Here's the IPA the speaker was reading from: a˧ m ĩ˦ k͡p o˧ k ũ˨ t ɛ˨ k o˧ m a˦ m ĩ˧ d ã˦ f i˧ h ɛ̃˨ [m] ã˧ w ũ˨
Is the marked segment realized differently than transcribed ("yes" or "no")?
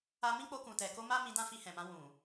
no